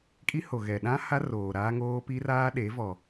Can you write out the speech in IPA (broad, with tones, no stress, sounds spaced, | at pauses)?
kʼ i˦ h o˨ ɣ ɛ˨ ɗ ã˦ h a˦ r oː˨ ɾ aː˦ ŋ oː˦ p i˦ r aː˦ ɗ e˨˦ v ɔ˨